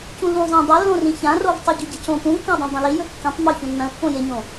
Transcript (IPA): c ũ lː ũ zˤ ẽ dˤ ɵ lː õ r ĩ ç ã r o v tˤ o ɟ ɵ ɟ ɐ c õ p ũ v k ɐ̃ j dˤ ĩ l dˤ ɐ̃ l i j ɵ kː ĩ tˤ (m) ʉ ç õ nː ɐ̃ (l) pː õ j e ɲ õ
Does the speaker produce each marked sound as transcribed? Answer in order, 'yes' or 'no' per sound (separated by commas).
yes, yes